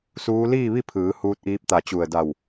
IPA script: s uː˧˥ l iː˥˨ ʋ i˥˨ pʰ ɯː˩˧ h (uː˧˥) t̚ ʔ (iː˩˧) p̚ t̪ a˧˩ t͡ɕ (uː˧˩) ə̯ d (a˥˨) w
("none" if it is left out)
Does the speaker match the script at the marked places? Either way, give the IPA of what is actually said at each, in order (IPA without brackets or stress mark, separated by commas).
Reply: uː˧˥, iː˧˥, u˧˩, a˧˩